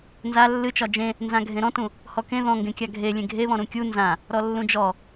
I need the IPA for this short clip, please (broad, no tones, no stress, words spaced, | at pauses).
nza lːɨt͡ʃɒ d͡ʒẽ | nzãɡʱẽɾɔ̃tũ | hɔkẽ ðɔ̃ŋɡẽkʲa ɡʱe lʲẽɡʱeβɔ̃ ɾũkʲu nzã | ɾɔlːũd͡ʒɔ